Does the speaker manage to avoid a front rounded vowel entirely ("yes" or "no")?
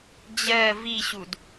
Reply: yes